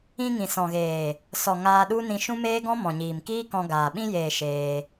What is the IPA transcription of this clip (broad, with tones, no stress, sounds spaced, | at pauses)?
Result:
ĩ˧ ŋ ĩ˨ s ɔ̃˨ ɣ eː˨ | s ɔ˨ ŋ aː˧ ɗ u˦ n ĩ˧ ʃ ũ˦ m eː˦ ɡ ɔ̃˦ m ɔ̃˨ ɲ iː˨ m k iː˦ k ɔ̃˧ ɡ aː˨ ɓ ĩ˧ j eː˨ ʃ eː˧